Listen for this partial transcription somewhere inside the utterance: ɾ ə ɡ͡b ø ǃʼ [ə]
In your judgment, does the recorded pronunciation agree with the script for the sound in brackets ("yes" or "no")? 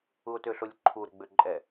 no